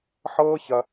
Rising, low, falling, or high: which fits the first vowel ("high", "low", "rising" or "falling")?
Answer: high